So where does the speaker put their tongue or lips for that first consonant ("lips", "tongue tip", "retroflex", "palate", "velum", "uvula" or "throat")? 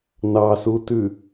tongue tip